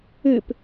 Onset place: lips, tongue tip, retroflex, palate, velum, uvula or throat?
lips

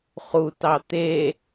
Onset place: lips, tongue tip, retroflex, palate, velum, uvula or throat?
uvula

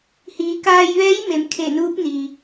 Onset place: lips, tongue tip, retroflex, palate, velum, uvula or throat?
throat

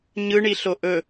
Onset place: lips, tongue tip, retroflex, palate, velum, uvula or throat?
palate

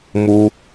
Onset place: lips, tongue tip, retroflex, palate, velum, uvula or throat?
lips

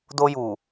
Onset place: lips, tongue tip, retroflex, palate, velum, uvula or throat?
tongue tip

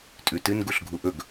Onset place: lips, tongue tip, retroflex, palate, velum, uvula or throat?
tongue tip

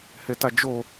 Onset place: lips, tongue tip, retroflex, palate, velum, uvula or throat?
throat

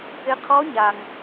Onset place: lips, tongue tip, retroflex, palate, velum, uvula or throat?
uvula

